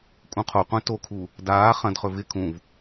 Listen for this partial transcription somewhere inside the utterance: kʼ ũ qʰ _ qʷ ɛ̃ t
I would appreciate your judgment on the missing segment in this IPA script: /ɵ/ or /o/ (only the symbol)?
o